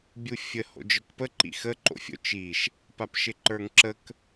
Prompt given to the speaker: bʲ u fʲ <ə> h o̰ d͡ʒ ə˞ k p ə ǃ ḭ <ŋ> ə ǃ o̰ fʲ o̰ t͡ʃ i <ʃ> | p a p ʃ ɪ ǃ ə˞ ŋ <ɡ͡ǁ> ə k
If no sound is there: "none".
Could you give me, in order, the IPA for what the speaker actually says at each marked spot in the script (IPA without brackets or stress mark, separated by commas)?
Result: ə, x, ʃ, ǁ